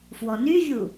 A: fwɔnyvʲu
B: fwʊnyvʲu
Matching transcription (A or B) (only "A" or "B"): A